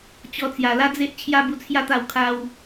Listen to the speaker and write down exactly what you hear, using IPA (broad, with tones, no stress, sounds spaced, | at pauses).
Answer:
t͡ɕ ɔ˧ t͡s j a˨˩ l a˦ d͡z e˦ ʔ t͡ɕʰ j a˦ b u˧ t͡sʰ j a˦ t̪ a˧ w kʰ a˧ w